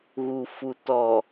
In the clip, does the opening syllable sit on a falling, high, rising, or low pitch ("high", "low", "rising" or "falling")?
low